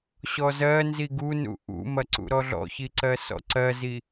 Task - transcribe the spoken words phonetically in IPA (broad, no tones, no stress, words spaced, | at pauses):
ɕɔzɜnzi ɡunṵ ʔṵmɐ ǀṵɾɔɮɔ̰çi ǀɜsɔ̰ǀɜzi